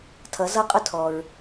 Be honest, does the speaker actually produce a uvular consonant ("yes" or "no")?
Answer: yes